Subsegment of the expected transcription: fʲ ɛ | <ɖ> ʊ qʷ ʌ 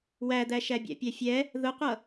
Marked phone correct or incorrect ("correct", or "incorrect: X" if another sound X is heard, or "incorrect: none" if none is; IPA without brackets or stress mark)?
incorrect: ð